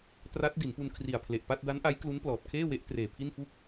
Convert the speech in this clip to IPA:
t r a˦˥ t̚ d i˩˦ n p u˧ n kʰ r i˨˩ a̯ pʰ l e˨˩ ʔ p a˥˩ t̚ d a˦˥ n ʔ a˦˥ j k l u˦˥ n p l ɔː˨˩ t̚ kʰ eː˥˩ w e˦˥ ʔ t r eː˨˩ pʰ i˥˩ n f u˥˩ k̚

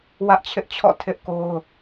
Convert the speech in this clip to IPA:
w ä˦ ʔ t͡ɕʰ ɪ˦ ʔ t͡ɕʰ ɔ̰˦˨ tʰ ɪ˦ ʔ k o˦ ʊ̯

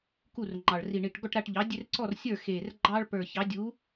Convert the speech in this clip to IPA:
k u˥˨ r ŋ͡ǃ ɑ˨˩ ɭ r i˨˩ ɳ i˨˩ ʈ ɡ ɔ˥˨ ʈ ɾ a˥˨ ʈ ʎ ɑ˨˥ dʲ e˦ r ǀ ɔ˥˨ r sʲ ə˞˥˨ x e˨˩ r ɡ͡ǃ ɑ˦ ɭ p ə˞˨˩ ç ɑ˨˥ dʲ u˨˥

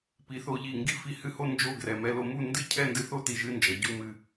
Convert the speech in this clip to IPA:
p i˩˧ θ o˧ ʎ i˧˩ ŋ ɡ i˥ f i˧ h ɨ˥˧ h o˥ n d͡ʒ o˥˧ ɡ r ɛ˩˧ m ɛ˧ l o˧ m u˥˧ n d ɨ˥ cʰ ɛ˥˧ n d ɨ˧ θ o˥ t i˧˩ ʒ ɨ˥ n d͡ʒ ʌ˩˧ ɟ u˧ m ɨ˧˩

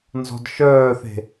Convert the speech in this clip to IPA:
n z ɔ̤ d ʃ œː θ e̤

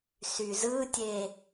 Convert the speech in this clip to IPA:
s y z ɯ tʲ e

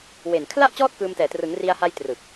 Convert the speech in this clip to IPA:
w e˨˩ n kʰ l a˥˩ ʔ t͡ɕ ɔː˥˩ t̚ k ɯː˧ m t ɛː˨˩ t r ɯ˩˦ ŋ r i˧ a̯ h a˧ j t r ɯ˨˩ k̚

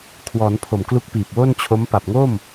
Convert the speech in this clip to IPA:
kʰ w ɔː˩˦ n pʰ o˨˩ m k l u˦˥ k̚ p iː˨˩ p̚ w o˥˩ n t͡ɕʰ o˦˥ m p a˨˩ p̚ ŋ o˥˩ m

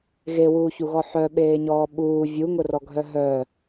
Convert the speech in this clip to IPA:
ɣ e w uː ç u ɣ ɔ ħ œ ɓ eː ɲ ɔː ɓ uː vʲ u ŋ ʊ r ɔ ɡʱ œ ɦ œ

